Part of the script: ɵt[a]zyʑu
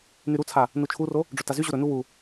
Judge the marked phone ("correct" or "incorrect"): correct